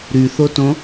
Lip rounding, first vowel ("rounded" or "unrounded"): rounded